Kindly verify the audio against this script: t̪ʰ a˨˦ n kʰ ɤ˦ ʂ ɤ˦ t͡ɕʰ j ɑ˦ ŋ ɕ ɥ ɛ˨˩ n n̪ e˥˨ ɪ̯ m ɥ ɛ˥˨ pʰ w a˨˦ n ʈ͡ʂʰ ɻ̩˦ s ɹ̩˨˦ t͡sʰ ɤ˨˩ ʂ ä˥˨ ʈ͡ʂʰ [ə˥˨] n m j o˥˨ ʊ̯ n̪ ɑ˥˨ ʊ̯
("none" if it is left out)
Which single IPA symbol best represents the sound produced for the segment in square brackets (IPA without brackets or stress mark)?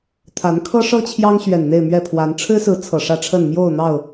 ə˥˨